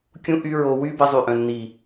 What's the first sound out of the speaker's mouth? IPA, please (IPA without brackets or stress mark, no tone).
kʲ